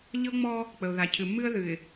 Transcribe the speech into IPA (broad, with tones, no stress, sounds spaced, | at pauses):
ʎ ɤ˦ ŋ͡m ɔ˦ | k͡p ə˨ ʊ̯ ð a˨ cʰ ɨ˨ mː ɨ˦ ə̯ ð ɨ˨ ɪ̯